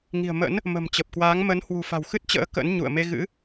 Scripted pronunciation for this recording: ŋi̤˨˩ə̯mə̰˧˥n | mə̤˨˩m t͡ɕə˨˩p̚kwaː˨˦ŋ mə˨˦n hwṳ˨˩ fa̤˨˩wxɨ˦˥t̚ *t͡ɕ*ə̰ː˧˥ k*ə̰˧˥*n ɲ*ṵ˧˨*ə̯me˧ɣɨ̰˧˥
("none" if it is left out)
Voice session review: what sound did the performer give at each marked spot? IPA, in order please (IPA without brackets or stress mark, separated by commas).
t͡ɕ, ə̰˧˥, ṵ˧˨